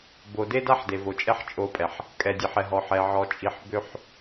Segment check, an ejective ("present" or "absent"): present